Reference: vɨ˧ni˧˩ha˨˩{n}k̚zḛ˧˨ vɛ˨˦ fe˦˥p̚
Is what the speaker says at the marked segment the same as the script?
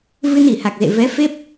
no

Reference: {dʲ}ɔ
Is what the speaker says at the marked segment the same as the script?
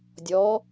yes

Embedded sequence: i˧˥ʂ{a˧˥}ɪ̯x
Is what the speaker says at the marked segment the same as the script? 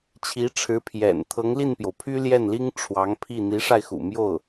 no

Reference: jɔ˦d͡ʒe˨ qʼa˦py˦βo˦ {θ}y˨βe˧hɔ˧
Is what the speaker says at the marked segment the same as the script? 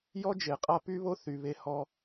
yes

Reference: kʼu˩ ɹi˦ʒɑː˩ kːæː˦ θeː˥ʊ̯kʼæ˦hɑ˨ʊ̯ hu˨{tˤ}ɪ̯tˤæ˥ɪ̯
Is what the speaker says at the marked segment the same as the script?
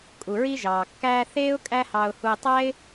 no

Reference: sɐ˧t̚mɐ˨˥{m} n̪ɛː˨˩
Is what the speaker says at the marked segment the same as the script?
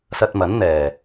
no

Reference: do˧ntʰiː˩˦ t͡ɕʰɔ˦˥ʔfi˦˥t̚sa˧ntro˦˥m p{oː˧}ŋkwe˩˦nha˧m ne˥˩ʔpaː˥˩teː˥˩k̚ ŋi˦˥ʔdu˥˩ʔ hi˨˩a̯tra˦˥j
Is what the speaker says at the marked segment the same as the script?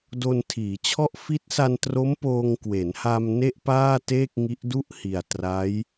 yes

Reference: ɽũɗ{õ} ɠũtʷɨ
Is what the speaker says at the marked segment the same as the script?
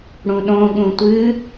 yes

